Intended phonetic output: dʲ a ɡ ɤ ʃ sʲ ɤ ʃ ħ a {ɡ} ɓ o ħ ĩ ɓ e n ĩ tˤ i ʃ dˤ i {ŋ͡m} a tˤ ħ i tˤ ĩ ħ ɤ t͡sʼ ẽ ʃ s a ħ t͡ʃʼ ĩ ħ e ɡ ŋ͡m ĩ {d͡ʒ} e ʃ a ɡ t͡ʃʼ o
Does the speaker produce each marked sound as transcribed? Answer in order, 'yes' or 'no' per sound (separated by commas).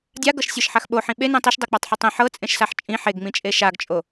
no, no, no